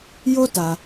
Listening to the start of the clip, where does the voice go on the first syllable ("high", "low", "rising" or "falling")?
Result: high